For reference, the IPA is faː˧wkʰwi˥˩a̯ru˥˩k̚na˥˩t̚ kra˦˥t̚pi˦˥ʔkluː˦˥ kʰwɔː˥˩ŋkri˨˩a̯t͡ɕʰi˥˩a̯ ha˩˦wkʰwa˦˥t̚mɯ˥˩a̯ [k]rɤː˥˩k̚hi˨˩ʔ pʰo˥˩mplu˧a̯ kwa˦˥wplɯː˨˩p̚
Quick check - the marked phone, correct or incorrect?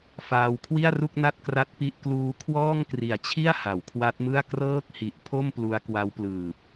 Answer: correct